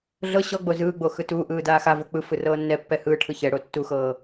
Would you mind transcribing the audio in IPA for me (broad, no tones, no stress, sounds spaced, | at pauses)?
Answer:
ɮ ɤ ɕ ɔ ɡ͡b o z ɯː ɡ͡b o x ɯ t uː ʔ ɯː d aː x a v o k͡p ɯ f ɯ r ɤː nː ɛ pː ɛ h ɯː ʈʰ ɯ ç ɛ ɽ o tː u x ɤː